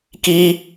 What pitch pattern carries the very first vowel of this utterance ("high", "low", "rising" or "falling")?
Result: high